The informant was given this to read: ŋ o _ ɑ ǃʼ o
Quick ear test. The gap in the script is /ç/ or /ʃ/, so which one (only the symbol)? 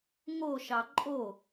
ʃ